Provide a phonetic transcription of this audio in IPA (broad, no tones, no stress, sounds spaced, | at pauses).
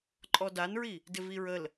ǃʼ ɔ d a n ɹ i | d ɪ v i ɹ ə l